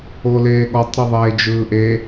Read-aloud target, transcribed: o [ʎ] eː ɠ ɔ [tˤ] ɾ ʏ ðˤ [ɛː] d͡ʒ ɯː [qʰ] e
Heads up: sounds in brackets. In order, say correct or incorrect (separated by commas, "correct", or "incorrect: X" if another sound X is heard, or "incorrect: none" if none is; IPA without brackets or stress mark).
incorrect: l, correct, incorrect: eː, incorrect: ʔ